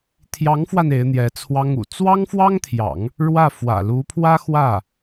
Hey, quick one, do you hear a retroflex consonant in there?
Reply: yes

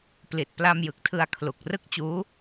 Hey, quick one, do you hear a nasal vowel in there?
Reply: no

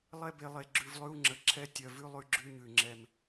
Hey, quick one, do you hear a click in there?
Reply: yes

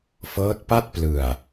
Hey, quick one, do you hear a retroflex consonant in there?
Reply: no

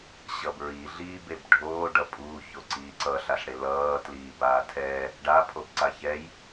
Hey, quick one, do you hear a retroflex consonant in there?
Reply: yes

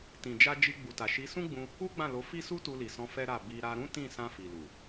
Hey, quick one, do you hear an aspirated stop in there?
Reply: no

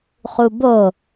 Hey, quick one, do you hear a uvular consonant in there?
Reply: yes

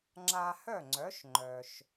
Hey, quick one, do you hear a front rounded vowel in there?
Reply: yes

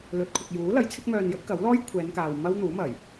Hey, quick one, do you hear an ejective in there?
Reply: no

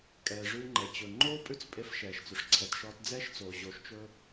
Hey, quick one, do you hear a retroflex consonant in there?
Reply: yes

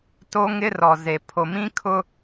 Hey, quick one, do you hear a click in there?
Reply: no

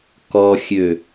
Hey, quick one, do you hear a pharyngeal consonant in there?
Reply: no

